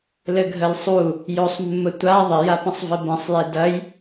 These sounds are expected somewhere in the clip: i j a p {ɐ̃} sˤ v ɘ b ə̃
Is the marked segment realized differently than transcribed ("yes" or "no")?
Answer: no